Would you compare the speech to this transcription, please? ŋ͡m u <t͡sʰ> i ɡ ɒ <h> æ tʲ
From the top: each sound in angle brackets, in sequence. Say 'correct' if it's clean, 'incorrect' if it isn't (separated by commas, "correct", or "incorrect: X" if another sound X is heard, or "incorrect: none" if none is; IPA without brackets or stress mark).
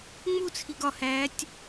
correct, correct